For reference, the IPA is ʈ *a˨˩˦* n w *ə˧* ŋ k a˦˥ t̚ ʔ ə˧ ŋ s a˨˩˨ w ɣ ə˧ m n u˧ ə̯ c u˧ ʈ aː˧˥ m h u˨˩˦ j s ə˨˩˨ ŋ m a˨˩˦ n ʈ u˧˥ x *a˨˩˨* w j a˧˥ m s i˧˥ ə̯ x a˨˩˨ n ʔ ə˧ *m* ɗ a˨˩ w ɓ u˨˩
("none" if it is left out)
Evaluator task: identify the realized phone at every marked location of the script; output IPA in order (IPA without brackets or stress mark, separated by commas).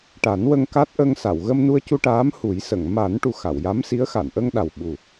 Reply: a˨˩˦, ə˧, a˨˩˨, ŋ